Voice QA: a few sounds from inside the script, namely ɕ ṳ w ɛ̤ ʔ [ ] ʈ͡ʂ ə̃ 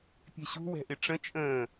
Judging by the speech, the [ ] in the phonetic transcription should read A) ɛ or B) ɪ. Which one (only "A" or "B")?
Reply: B